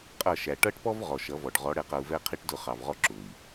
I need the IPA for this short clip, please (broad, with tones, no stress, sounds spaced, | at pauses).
qʼ ʌ˦˨ ʃ æ˨ ʈ ʌ˦ ʈ p ɔ˦ v ʁ ɔ˨ ʃ ʌ˨˦ v ɔ˨ ɖ ʁ ɔ˨˦ ɽ ɛ˨ q ʌ˨ u̯ v ɛ˦ qʰ i˦ ʈ d ʊ˦˨ χ ɑ˨ v ʁ ɔ˦ ǁ ʊ˨ i̯